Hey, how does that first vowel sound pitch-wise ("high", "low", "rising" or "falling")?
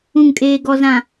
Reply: low